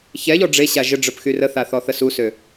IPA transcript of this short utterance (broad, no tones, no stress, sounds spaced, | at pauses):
ç ɛ ʎ ɔ ɖ͡ʐ e ɕ a ʒ ə ɖ͡ʐ œ p x y r ə θ a θ ɔ θ ə s u s ø